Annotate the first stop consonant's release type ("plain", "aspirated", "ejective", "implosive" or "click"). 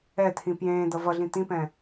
aspirated